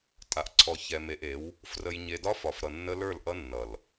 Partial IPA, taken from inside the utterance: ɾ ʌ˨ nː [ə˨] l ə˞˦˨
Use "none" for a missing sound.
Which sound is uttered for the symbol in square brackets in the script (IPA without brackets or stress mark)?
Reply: ə˦